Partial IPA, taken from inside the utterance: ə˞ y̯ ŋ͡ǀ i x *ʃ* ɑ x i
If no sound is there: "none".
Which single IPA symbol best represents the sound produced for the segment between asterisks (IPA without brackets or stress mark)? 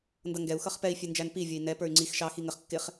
ʃ